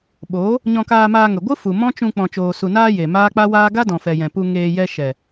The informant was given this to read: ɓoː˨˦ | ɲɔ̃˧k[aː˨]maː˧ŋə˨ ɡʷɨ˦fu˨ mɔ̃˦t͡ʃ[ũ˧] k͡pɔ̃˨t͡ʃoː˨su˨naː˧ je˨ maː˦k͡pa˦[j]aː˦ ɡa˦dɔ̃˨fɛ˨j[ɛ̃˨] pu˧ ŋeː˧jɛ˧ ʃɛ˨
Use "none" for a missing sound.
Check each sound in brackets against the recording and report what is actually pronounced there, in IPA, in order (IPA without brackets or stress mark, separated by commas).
aː˧, ũ˧, w, ɛ̃˨